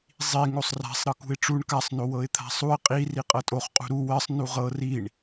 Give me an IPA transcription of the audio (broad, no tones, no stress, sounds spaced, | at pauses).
zˤ i ŋ o sˤ r a̤ sˤ ɾ ɤ k ṳ ɪ̯ ʈ͡ʂ u ɳ k a sˤ n o w ɤ ɪ̯ t̪ʰ a̤ sˤ u ɪ̯ qʼ i r i qʼ ɤ tʼ o χ qʼ ṳ ɾ u w ɜ sˤ n u ʁ ɤ r i ɳ